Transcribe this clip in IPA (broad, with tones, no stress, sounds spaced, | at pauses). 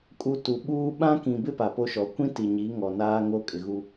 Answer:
kʼ u˨ t u˨ ɓ uː˦ ɓ ã˦ k ĩ˨ b ɪ˦ p a˨ p o˦ ʃ ɔ˨ kʷ ĩ˦ t i˨ ɲ i˨˦ ŋ ɔ˨ n aː˦ ŋ o˦ kʼ ɪ˨ ɣ u˦